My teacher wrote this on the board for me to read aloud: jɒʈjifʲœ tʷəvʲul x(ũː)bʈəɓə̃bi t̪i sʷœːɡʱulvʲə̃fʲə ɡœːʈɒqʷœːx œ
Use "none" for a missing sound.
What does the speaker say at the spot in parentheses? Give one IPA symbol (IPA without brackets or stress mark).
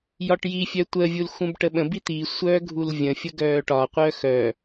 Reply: ũ